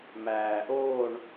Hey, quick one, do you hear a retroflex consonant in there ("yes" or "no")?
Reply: yes